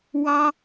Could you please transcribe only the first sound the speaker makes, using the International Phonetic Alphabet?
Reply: w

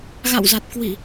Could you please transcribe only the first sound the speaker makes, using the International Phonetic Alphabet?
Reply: ɣ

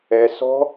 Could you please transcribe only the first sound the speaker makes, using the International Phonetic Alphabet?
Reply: ɛ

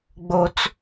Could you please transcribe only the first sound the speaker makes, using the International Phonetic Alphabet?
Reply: ɡ͡b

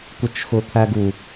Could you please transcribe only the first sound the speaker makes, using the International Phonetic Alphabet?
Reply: kʷ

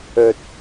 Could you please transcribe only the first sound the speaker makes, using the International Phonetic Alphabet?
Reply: ɵ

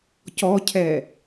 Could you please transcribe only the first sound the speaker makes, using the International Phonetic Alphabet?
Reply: c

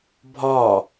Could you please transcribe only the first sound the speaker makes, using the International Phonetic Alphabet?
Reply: bʱ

